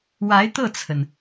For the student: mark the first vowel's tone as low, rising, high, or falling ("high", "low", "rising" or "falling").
rising